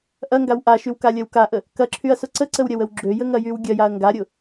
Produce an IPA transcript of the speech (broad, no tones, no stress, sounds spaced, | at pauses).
ʔ ɐ ŋ ɡ a w ʔ a ʃ y w k a lʲ ɐ w k a ʔ ə | k ɐ ǁʰ y ɐ̯ s ʊ ǀ ə ǀ ə w ɾʲ ɐ w ə w ɡ͡ǁ ø j ə ŋ ɐ j y w ɡʲ ɐ j a ɐ̯ ŋ ɡ a ɾʲ ʊ